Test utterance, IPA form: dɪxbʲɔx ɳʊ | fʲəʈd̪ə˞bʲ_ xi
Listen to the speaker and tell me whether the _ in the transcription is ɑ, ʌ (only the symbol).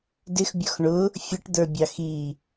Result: ɑ